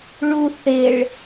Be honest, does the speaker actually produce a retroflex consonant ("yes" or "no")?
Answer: yes